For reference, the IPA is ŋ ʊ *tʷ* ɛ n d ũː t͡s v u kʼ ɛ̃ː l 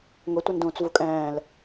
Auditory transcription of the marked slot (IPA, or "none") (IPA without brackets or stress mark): tʷ